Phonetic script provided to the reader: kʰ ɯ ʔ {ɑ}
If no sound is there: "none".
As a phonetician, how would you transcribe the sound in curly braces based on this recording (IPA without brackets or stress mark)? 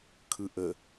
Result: ə